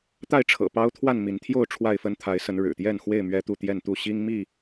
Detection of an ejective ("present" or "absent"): absent